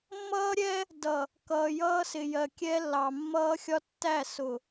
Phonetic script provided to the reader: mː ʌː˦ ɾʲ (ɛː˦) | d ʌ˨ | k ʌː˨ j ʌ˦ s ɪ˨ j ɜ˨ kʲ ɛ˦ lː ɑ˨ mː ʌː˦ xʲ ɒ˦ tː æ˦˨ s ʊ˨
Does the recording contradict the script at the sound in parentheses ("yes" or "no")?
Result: yes